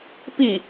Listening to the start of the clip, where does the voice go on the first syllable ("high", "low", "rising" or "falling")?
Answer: falling